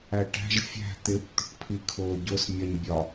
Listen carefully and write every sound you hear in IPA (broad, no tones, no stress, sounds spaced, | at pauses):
æ ʈ æ̤ ʒ fʲ æ̤ t̪ ɪ b t̪ ṳ ʈ pʰ i kʰ ʊː ɟ ʊ s mʲ ɜ ɲ bʲ ɒ